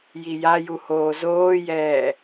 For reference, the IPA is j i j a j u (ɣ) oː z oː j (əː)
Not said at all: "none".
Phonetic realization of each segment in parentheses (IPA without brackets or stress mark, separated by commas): h, ɛː